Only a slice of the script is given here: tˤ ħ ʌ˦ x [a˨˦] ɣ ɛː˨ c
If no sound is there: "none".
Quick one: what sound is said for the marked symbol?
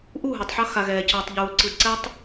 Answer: a˨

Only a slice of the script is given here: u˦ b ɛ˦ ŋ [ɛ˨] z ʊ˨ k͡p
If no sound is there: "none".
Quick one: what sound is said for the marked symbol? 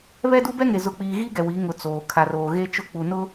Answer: e˨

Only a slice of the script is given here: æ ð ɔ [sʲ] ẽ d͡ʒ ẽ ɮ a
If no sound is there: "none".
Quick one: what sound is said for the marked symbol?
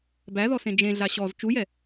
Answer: s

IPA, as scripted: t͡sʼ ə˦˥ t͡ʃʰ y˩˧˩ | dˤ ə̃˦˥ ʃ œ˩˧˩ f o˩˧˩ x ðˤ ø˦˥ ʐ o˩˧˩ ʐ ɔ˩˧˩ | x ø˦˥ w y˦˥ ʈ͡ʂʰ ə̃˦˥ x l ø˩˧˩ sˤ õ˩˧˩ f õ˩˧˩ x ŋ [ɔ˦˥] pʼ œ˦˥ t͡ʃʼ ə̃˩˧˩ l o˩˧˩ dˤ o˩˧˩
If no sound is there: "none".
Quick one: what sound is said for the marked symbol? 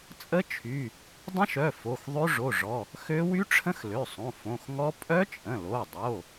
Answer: ɔ˦˥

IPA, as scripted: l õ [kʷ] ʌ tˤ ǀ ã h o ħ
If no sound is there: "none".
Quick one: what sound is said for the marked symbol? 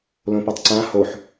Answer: p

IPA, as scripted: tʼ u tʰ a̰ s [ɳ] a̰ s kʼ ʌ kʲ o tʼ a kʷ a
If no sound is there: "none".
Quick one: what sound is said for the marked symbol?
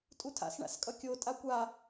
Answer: ɳ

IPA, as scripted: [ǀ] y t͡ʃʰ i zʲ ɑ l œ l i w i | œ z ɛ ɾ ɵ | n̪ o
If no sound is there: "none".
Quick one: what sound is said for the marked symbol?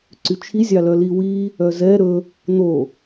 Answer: ǀ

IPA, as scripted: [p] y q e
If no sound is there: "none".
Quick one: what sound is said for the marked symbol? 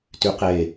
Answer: t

